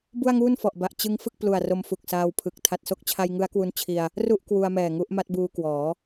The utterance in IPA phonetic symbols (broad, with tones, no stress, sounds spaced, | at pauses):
b u˥˩ a̯ ŋ uː˥˩ n f ɔ˨˩ ʔ b a˨˩ ʔ t͡ɕ ɯ˦˥ ŋ f ɯ˥˩ k̚ p l u˨˩ a̯ r o˧ m f u˨˩ k̚ s aː˧ w pʰ ɯ˨˩ k̚ tʰ a˨˩ t̚ s o˥˩ k̚ t͡ɕʰ a˧ j ŋ ɯ˦˥ a̯ k w u˧ n t͡ɕʰ i˧ a̯ | r u˥˩ ʔ k w u˧ a̯ m ɛː˨˩ ŋ u˦˥ ʔ m a˦˥ t̚ b uː˧ k w ɔː˩˦